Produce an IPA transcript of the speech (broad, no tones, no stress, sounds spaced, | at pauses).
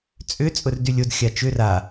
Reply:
t͡sʼ ʏ t͡sʼ ʊ r d y lʲ o d xʲ a t͡ʃ ʏ r a